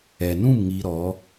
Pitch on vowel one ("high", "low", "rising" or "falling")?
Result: low